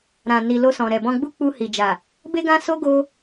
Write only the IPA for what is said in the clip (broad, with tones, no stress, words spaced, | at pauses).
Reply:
ɾã˨ni˨lo˧sɔ̃˨ ɾɛ˨bɔ̃˧ɡ͡bu˦ k͡pu˧hi˨d͡ʒa˨ | be˦ɡã˦so˦ ɡo˧